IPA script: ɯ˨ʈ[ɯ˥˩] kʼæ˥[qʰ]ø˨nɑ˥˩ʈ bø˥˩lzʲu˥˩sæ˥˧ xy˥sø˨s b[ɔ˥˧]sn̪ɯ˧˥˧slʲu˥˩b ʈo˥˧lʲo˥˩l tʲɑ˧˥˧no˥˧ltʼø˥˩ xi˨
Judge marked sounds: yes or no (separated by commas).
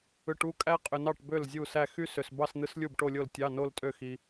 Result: no, no, no